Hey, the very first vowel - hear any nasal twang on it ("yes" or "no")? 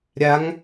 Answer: no